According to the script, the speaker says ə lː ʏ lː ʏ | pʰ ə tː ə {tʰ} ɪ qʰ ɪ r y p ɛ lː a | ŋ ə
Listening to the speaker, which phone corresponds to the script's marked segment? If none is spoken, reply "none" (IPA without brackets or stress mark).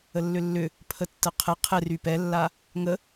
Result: qʰ